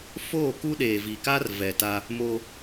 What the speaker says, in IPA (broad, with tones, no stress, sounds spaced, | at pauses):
f oː˦˨ k u˦ ɗ eː˨ v i˨ k a˦ r v ɛ˨ t a˦ | m o˦